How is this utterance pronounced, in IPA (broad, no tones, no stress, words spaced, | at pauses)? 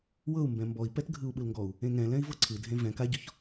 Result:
wɤu̯mbɛ̃ mbɔi̯pɛt ɡʱɯu̯ɓɯlŋɡɔu̯ | ẽŋɛ̃lɛ̃i̯ vɤǀʰɯdʱẽ vɛ̃ kaɟɔç